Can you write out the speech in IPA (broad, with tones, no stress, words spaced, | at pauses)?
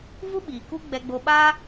vu˦ɓiː˨ku˦ ɡ͡bɛ˧ɡ͡bo˧ ɓaː˦